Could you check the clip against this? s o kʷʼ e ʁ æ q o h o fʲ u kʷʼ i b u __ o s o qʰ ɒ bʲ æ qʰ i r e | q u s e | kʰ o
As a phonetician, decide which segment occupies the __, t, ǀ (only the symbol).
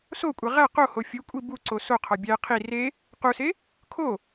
ǀ